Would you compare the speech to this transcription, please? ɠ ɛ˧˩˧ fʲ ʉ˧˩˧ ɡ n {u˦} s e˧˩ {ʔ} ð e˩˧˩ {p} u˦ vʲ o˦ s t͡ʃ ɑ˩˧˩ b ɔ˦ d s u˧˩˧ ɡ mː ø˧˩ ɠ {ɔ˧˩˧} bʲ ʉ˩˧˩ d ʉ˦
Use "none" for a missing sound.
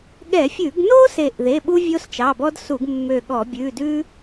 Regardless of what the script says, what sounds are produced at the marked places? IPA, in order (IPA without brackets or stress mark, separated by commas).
o˦, ʔ, ɓ, ɔ˧˩˧